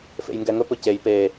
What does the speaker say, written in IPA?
fḛjŋɡɛŋɵp ɵcej pe

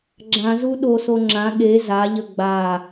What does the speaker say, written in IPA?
ɡ͡ǁãzu ɗoso ŋ͡ǁã ɠe zaʎə ɡ͡ba

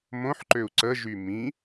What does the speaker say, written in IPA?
mõħǃøu̯ ǀəʒy mĩ

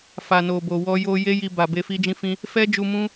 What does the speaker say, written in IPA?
fa˨no˨bo˨ wɔ˧jo˧ je˦ji˧ ba˨be˧ fi˦d͡ʒĩ˦fĩ˦ | fɛ˦d͡ʒu˧ mũ˦

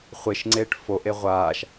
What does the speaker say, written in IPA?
χʷeʃŋ͡ǀeːʈ foʔe ʁʷaʃ

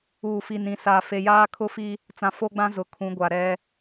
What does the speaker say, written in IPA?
uː˨fi˨nĩ˨sa˨ fe˨jaː˦kʰʊ˦fi˦ | t͡sã˨fo˦ɡ͡bã˦ zʊ˨kʰũ˨˦ɡʷa˨ ɾɛ˦

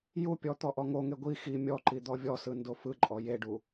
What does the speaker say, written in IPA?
jupʲɔ t̪ɔʔɔŋoŋe ɡʷi xi mʲɔǃi d̪ɔvʲɔsɯ ndofɯǃʼɔ jeɖu

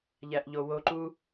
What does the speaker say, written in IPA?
ʎæʔʎowoǃu

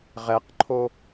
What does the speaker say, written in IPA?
ʁɛqǃʰo

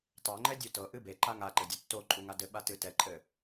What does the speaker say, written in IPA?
tˤɛŋ͡ǃɛ dʲutɤʔɨ beǃa ŋaǃɘ dʲɤtːoǃʼu ŋadɘɓa tɨtɛǃʼɘ

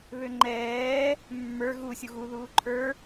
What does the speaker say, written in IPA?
βøŋ͡ǃɛː | mːə˞ ɣu sʲuɣu ðuːǃʰə˞

